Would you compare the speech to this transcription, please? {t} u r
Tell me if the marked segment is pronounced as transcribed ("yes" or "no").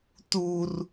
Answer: yes